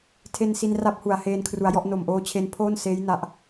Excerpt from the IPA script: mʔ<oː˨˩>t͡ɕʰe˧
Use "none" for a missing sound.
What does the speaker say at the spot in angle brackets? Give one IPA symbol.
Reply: oː˧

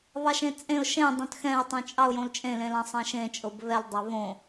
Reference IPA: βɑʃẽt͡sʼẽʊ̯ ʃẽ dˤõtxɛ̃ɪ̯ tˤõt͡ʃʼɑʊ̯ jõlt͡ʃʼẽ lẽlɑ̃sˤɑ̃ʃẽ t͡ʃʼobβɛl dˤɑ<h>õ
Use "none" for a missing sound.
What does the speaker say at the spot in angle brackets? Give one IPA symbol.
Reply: β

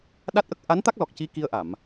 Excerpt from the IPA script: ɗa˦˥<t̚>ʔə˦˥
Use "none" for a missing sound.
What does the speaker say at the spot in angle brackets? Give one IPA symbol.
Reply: t̚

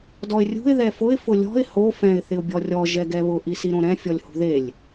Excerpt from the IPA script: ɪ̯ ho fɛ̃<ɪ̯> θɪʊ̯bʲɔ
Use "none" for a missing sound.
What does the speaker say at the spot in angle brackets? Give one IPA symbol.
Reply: ɪ̯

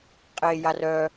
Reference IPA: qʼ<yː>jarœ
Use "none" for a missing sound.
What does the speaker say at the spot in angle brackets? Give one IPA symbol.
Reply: eː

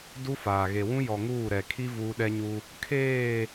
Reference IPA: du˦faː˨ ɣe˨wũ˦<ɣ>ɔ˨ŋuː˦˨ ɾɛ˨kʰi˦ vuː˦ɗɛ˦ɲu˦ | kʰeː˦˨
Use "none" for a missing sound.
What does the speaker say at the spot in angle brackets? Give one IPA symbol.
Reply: j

